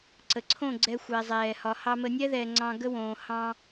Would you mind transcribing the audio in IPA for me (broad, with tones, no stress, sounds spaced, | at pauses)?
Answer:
ǀ ə˨ ǀʰ õ˦˨ ɡ͡ǀ ɛ˧ xʷ ɛ˨ zˤ ɛː˨ h ɒ˨ h ɑ˧ m ə˧ nʲ ɛ˦ ð ɛː˨ ŋ͡ǀ ɑ̃˧ ɡ ə˦ w õː˨ h ɑ̃˦